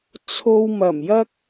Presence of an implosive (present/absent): absent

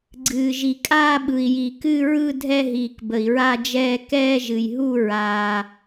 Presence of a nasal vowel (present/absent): absent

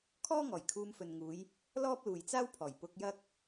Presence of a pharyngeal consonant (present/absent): absent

